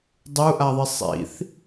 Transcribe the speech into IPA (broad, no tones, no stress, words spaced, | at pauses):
dˤuʔaðˤi sˤḭθ